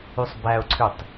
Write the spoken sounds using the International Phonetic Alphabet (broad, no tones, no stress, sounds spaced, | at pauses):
y sˤ b æ ʊ̯ ǀʰ y tˤ